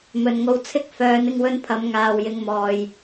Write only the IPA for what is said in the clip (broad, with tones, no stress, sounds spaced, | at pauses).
m ɵ˨ n ŋ o˧ w t͡sʰ ɪ˧ k̚ f œː˨˧ n ɪ˧ ŋ w ɵ˧ n pʰ ɐ˨˧ m ŋ aː˨ w j ɪ˨˧ ŋ m ɔː˨ j